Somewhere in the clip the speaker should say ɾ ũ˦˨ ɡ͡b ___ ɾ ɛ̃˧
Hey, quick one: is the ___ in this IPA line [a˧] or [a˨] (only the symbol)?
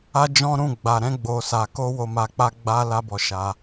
a˨